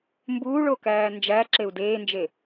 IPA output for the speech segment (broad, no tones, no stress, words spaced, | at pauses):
mbuːɭokæː nd͡ʒæǁeu̯ deːnd͡ʒe